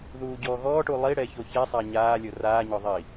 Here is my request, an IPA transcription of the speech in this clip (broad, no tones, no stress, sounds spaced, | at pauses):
ð uː ɟ ɔː ɣ ɔː ʈ u lˠ i ɽ ɛ ç o ç ɛ sˤ a ɲ aː lʲ o r aː ɲ ɔ ðˤ i